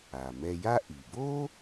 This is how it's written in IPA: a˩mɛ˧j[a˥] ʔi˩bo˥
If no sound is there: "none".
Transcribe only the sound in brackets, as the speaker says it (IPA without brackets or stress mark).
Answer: a˥